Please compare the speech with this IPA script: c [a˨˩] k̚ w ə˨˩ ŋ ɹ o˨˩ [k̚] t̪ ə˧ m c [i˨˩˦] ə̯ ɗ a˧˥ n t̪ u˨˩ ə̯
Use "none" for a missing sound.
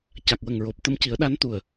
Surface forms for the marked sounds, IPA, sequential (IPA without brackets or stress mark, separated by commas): a˨˩, p̚, i˨˩˦